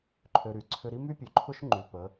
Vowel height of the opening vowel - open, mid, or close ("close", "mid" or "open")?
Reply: mid